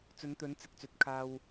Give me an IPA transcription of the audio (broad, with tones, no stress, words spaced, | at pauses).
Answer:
t͡sɵ˨˥nt̪ɵ˨˥n t͡sɪ˨k̚t͡sɵ˨t̚ kʰaː˨w